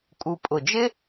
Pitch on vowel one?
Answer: low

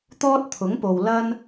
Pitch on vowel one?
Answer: high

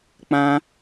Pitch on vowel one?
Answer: high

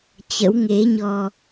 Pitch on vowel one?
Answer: rising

